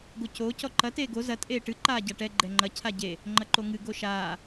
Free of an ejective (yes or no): no